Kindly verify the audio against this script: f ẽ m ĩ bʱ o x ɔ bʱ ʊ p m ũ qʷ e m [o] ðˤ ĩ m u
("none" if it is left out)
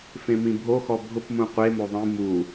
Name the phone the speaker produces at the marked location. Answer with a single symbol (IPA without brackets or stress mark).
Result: o